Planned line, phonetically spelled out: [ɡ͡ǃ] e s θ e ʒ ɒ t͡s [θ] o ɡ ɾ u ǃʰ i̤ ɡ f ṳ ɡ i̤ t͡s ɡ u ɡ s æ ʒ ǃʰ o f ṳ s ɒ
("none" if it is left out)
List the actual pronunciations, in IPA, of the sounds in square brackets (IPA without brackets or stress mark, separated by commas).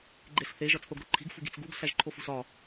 ɡ͡ǃ, θ